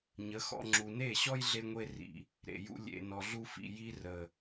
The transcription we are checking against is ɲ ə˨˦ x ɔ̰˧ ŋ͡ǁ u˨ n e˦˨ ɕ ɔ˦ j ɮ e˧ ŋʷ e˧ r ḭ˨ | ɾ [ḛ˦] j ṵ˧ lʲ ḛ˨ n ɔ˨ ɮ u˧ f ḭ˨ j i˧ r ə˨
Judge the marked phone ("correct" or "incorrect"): incorrect